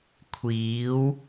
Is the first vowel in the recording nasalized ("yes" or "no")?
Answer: no